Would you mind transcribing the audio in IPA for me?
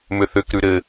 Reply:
m ʏ θ ʏ k ɾ ʉ ɾ ɘ

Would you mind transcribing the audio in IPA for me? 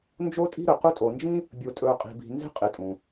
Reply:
n d͡ʒ o˦ tʼ i̤˦ ɾ ɵ˩ q u˦ tʼ o˨ n d͡ʒ ĩ˥ | bʲ o˨ tʼ ɵː˨ qʼ i̤˨ b i̤˨ n z e̤˥ qʼ ɪ˨ tʼ ũ˩

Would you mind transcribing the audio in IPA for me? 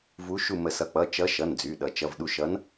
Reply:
v u˨˦ ʃ u˧˩ m ə˨˩˦ s ʌ˩˧˩ k͡p ʌ˩˧˩ t͡ʃ ʌ˨˦ ʃ ʌ˩˧˩ n d͡z y˩˧˩ ɗ ʌ˨˩˦ t͡ʃ ʌ˩˧˩ v ɗ u˧˩ ʃ ʌ˨˦ n

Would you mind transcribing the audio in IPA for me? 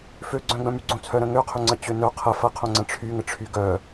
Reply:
f ø ɡ͡ǀ œ̃ ɡ͡b œ̃ m y ɡ͡ǀ õ t͡sʰ œ ɾ ə̃ ŋ ø qʰ ʏ ŋ͡ǀ ə t͡ɕ ø n œ qʰ ə f ɐ qʰ õ ŋ͡ǀ ə̃ ʈ͡ʂʰ y ŋ ə ʈ͡ʂʰ y ɡ œ

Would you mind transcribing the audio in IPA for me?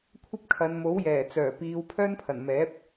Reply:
kʷʰ ɐ˥ p̚ kʰ ɐ˨˧ n m o˨˥ w j ɛː˨˩ t͡s œː˨˩ p iː˨˧ w pʰ œː˥ n pʰ ɐ˨˩ n m ɛː˨˥ p̚

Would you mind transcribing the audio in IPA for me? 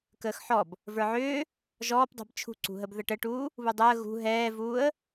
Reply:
k əː x ħ ɔ b | v ə˞ ʕ ʏː | ʒ ɔː p dˤ e̤ b t͡ʃʰ ṳ ǀ ṳ ɦ ə b ð ə ʈ ə ʈ uː | β u dˤ əː ɣ ṳ ɦ ɛː v uː ə̯

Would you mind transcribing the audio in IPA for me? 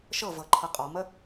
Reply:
ʃ ɤ v ɤ ǃʰ ɤ qʼ ɔ m ə

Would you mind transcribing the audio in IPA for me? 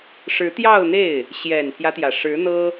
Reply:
ʂ ɻ̩˧˥ t̪ j ɑ˥˧ ʊ̯ n̪ e˥˩ ɪ̯ | ɕ j ɛ˨˩ n pʰ j ä˦ t̪ j ä˩ ʂ ɻ̩˧˥ n̪ ɤ˥

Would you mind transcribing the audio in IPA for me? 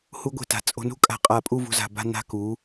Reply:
h u˧ ɡʷ e̤˧˩ t a̤˩˧ t͡sʼ o̤˧ n ṳ˥ kʼ a̤˧ qʼ a˧˩ pʼ u˥˧ v ṳ˧ z a̤˧˩ b a̤˥˧ n a̤˧ k u˩˧

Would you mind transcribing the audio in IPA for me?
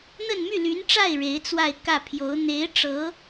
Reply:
n̪ ə˥˧ n m y˥˩ l y˧˥ n ʈ͡ʂ a˥˩ ɪ̯ ɻ e˧˥ ɪ̯ t͡s w a˥˧ ɪ̯ k ä˥˩ pʰ j o˧˥ ʊ̯ n̪ e˧˥ ɪ̯ ʈ͡ʂ ɤ˧˥

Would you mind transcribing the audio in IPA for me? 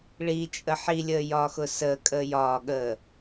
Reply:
ɭ i t͡ʃʼ ə ħ i lʲ əː j ɒː x ʊ s əː kʼ əː j ɒː ɠ əː

